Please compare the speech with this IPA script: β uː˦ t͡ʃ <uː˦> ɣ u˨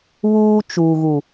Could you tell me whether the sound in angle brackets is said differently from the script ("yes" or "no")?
yes